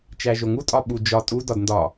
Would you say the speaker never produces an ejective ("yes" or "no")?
no